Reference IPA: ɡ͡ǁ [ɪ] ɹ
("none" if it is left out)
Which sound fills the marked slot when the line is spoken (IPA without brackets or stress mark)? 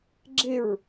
ɪ